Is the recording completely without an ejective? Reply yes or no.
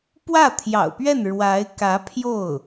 yes